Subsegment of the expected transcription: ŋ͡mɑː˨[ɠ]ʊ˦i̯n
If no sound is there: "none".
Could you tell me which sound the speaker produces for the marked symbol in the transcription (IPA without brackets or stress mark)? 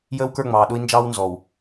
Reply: ɗ